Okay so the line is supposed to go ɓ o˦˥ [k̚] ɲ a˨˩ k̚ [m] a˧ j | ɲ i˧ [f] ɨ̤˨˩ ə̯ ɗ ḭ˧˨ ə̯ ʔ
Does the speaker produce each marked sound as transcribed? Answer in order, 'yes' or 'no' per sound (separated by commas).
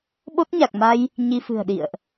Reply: no, yes, yes